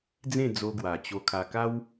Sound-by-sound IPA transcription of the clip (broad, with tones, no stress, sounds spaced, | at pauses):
d͡z ẽ˥˧ d͡z o˧ ɡ w a˨˩ t͡ɕ o˧ kʰ a˧ k a˦ w